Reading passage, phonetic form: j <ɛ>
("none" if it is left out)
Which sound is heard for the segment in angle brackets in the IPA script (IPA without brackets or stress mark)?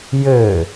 ɘ